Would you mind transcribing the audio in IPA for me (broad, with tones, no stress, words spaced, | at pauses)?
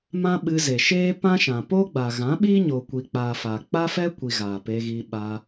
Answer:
mã˦ ɓɨ˧ze˨ʃeː˦ pã˦ʃã˨ po˦ɡ͡ba˨ɣã˨˦ ɓiː˦ ɲo˨kʷi˨k͡paː˨ fa˨ k͡pa˦fɛ˦kʷi˨ ɣaː˨pe˧ɣi˧ ɓa˧